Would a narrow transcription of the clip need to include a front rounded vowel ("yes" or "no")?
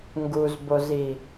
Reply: no